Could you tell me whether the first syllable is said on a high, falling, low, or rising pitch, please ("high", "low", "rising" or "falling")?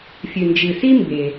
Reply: low